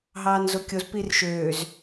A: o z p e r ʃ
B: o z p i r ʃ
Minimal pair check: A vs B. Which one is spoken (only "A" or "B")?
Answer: B